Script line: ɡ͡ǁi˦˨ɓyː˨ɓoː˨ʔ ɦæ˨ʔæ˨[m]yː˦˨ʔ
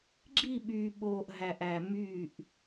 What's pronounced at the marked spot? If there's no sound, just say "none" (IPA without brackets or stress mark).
m